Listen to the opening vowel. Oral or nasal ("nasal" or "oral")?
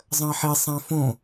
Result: nasal